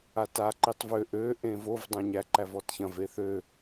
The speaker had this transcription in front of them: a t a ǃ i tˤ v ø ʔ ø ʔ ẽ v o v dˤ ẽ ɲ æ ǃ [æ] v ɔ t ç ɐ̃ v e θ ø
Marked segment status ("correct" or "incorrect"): correct